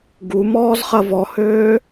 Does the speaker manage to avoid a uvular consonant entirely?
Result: no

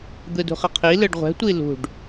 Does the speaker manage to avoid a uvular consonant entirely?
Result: no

